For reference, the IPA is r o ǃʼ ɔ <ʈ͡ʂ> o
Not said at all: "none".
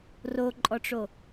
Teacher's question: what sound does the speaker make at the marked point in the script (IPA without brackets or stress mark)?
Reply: ʈ͡ʂ